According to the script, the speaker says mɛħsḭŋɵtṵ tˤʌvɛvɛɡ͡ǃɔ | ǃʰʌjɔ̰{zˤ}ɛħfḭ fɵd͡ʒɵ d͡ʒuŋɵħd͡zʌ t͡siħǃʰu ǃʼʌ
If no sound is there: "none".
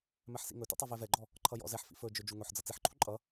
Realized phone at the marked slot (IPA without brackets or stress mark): z